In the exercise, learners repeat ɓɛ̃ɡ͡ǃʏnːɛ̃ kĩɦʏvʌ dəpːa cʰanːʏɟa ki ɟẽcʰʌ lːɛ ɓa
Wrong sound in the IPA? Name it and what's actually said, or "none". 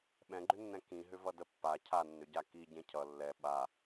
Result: none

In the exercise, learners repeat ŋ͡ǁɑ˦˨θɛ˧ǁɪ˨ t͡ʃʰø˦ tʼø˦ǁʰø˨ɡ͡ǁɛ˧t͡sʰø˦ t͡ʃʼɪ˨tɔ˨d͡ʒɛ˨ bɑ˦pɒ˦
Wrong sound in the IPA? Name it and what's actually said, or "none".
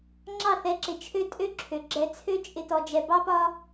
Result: none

